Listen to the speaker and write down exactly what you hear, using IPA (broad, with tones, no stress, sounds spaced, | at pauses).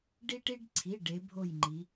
ɖ i˦ ʈ i˦ ɖ ǀʰ i˩˧˩ ɖ e˨˦ bʱ o˦˨ j ŋ͡ǃ i˨˦